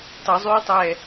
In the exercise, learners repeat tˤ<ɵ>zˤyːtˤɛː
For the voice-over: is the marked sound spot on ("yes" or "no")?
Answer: yes